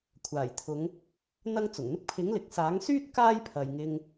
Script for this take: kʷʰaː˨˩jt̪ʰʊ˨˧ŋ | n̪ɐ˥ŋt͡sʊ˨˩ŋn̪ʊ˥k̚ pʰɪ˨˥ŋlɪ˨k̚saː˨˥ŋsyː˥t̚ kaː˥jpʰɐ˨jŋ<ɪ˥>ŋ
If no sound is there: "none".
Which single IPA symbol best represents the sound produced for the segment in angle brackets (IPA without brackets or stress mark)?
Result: ɪ˧